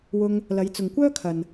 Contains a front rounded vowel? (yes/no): yes